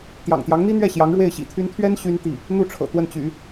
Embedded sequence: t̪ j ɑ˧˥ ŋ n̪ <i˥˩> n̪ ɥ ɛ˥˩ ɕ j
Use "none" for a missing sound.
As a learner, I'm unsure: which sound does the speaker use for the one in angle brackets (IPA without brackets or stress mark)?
i˥